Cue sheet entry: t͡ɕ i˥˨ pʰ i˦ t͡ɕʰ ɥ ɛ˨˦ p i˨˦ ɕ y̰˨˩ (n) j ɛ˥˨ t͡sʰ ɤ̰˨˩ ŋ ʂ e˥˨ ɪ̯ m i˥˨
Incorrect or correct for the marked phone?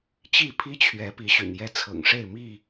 correct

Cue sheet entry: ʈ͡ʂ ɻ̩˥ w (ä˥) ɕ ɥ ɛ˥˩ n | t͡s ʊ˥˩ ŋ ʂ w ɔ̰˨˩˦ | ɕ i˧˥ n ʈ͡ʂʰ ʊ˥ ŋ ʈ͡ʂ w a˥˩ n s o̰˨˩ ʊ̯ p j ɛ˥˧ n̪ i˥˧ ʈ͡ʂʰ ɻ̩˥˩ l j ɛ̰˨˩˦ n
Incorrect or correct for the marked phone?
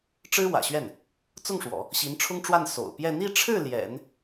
incorrect: ä̰˨˩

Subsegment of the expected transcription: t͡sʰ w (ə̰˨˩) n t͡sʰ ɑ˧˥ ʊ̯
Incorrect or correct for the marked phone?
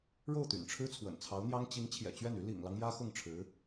correct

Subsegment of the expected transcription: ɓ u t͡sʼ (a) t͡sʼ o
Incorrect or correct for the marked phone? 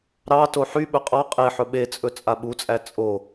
incorrect: æ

